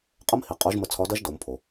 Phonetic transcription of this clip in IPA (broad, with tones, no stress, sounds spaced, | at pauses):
qʼ ə˥ m h i˩˧ qʼ o˧˥ ʒ m ə˧ t͡sʰ ɒ˧˥ d ɐ˥ ʒ d o˩˧ m pʰ o˩